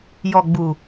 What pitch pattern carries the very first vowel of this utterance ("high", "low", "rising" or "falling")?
low